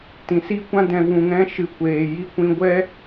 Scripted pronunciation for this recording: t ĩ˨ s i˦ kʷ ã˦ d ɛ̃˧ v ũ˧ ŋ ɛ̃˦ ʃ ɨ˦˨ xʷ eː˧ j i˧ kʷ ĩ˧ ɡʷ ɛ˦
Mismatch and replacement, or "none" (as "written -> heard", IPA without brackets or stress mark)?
xʷ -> kʷ